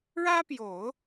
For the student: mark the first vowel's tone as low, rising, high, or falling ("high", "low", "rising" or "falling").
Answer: high